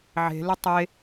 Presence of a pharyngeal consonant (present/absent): present